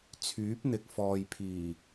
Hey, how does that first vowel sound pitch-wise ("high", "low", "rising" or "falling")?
rising